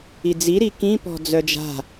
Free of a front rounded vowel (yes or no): no